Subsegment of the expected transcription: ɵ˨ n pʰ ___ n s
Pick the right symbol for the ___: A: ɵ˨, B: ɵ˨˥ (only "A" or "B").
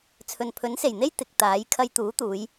B